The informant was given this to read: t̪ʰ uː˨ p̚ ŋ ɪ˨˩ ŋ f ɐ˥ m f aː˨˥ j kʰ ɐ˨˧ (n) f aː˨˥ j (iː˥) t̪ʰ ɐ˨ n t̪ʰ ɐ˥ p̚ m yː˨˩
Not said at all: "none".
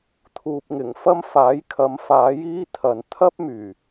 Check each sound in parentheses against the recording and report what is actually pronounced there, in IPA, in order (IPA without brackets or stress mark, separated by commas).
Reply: m, iː˥